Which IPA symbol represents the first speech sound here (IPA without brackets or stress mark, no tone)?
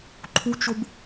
ǃʰ